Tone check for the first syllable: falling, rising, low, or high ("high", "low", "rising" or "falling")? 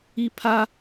high